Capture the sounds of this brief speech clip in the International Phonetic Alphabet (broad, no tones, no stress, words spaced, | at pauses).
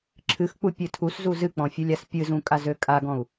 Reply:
ǁʰɨxk͡pu pʲɨtʰuszu zɨk͡pɔ̃fʲulʲas pʲɨzũ kʼazøkʼaɡɔ̃u̯